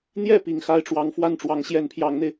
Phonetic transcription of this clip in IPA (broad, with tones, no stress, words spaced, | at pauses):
n̪jɛ˥˩ pi˨˩ŋxa˥ɪ̯ʈ͡ʂwɑ˧˥ŋ fwa˥˩nʈ͡ʂwɑ˧˥ŋ ɕjɛ˧˥npʰjɑ˧˥ŋn̪e˧ɪ̯